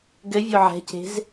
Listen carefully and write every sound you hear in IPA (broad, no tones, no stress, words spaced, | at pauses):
ɡɘvʲo ʕɛ̤ce̤z